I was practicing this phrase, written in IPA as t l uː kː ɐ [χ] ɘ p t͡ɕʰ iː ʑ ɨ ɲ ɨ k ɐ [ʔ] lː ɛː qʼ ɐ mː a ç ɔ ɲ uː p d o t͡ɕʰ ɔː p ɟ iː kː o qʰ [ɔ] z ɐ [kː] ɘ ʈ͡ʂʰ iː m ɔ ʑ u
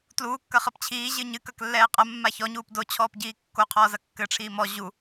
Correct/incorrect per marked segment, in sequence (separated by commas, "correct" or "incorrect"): correct, incorrect, incorrect, correct